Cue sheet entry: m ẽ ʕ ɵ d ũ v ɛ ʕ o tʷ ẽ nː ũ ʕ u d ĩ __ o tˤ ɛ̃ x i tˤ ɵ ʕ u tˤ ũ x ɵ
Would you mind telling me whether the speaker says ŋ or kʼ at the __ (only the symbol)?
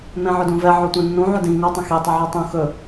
ŋ